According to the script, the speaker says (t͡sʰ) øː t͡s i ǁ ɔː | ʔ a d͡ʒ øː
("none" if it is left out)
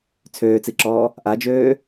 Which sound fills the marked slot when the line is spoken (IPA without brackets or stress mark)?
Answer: t͡sʰ